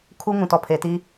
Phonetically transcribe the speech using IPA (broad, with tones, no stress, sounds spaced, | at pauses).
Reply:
kʰ u˦ ŋ ũ˨ t ɔ˨ pʰ e˨ t i˦